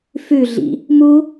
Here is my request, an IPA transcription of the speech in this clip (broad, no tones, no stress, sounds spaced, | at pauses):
f ʉ ɮ ḭ | m u